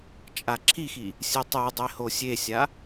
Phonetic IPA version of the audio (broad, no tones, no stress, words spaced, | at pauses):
t͡ʃʼaǁʰixi | sʲɨtˤɨdˤe hosʲesʲa